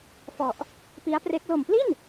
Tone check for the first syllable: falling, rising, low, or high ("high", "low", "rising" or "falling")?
low